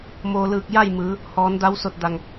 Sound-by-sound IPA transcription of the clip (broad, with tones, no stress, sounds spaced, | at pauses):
m oː˩ l ɯː˧˩ k̚ j a˥˨ j m ɯː˩˧ | h ɔː˩˧ n d a˧˥ w s o˧˩ t̚ d a˧˩ ŋ